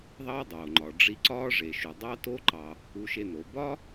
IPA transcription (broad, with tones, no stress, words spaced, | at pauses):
ðˤɑ˥dˤoː˩ŋ͡ǃɒ˩ ɖ͡ʐi˧ǀɒː˥ʐe˩ʃu˩ dˤɑ˥to˥ǃɑ˩ | u˧ʃe˧no˩ bɒ˥